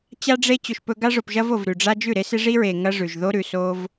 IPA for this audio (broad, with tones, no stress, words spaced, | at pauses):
t͡ɕa˦ɖ͡ʐe˦ t͡ɕɵ˧ʃpɵ˦ ɡa˧ʐo˨pʒɐ˧v o˨vɾʉ˨ɖ͡ʐa˦ d͡ʒʉ˦˨ɾe˦se˦ ʐi˦ɹe˨ ŋɐ˦ʐʉ˨ʒ ðo˦ɾʉ˨ so˦v